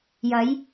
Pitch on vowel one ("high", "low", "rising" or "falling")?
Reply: rising